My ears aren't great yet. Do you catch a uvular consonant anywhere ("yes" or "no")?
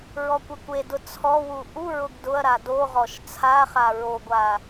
yes